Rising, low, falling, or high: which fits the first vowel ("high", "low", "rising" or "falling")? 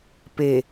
low